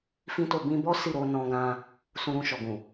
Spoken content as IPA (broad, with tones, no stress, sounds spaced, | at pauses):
f ĩ˦ t o˦˨ b ĩ˧ b ɔ˦ s i˦˨ ɾ o˧ n ɔ̃˧ ɡ ã˧ | s ũ˧ ɾ ũ˧ ʃ ɔ˨ ɡ ũ˨